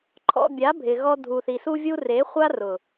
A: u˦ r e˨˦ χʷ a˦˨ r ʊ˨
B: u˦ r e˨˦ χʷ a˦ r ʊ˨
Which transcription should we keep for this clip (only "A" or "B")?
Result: B